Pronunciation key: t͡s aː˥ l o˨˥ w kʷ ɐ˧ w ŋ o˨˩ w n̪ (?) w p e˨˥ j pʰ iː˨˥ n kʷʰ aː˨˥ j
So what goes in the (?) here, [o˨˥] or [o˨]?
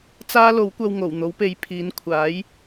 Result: o˨˥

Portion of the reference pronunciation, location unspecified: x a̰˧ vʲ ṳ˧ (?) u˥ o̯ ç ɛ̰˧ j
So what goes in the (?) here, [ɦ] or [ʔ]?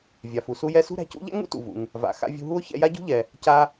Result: ɦ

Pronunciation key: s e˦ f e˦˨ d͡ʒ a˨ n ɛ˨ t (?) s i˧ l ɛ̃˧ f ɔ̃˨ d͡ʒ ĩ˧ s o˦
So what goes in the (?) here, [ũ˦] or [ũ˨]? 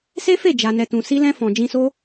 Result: ũ˨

